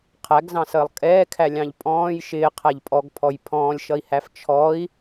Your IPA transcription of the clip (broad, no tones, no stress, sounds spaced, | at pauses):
qʰ æ ɡ z ɑ̃ s əː lˠ kʼ ɛː kʰ æ lʲ ɑ̃ ʎ pʼ ɔ̃ː j ʃ ɪː qʰ æ ʎ pʼ ɔ ɡ pʰ ɔ j pʰ ɔ̃ː lʲ ʃ ʌ i̯ h æ f t͡ʃʰ ɔ i̯